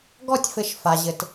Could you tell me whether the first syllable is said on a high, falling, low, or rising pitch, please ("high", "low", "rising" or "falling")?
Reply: falling